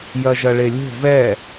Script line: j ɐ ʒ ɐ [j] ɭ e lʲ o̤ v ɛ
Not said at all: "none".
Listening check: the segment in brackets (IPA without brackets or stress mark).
none